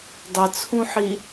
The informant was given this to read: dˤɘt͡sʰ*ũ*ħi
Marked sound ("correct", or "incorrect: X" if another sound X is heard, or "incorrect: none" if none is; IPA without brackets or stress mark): correct